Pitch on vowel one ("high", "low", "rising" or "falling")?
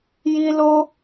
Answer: high